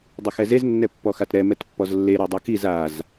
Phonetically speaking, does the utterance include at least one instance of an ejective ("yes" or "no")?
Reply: no